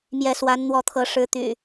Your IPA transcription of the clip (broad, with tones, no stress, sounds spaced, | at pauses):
m j ɛ˨˦ s w a˨˦ n n̪ w ɔ˨˦ t̪ʰ ɤ˨˦ ʂ ɻ̩˨˦ t̪ y̰˨˩